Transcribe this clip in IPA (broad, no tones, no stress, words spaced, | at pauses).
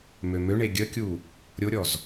mømøɳe ɡʲəkʲu | ɾʲoɾʲɔz